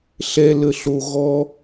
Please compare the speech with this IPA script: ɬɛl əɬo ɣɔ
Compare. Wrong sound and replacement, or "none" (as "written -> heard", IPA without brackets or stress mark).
none